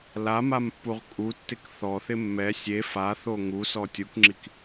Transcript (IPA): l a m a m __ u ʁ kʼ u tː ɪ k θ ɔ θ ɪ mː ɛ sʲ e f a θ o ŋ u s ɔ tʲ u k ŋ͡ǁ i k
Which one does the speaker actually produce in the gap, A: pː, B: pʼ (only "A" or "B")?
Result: A